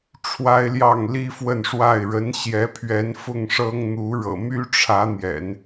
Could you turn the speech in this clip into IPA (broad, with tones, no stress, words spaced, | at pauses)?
ʈ͡ʂʰwa˥ɪ̯ljɑ˥˩ŋ li˥fwə˥˧n ʂwa˥˩ɪ̯ ɻə˧˥nɕjɛ˧˥ pʰɥɛ˧˥n fʊ˥˩ŋ ʂɤ˥ŋn̪u˧˥ ɻɤ̰˨˩my˥ʈ͡ʂʰä˧˥n̪jɛ̰˨˩˦n